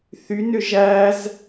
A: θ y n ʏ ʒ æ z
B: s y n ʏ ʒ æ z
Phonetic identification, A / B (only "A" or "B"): A